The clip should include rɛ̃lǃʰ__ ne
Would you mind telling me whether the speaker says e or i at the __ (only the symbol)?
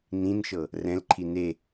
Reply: i